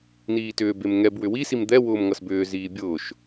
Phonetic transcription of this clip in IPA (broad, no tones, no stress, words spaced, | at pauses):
niːtʏːbem ŋɛb wʏwisim d̪ɛ wʊːmŋʌsbʏːziː bʲʊːʃ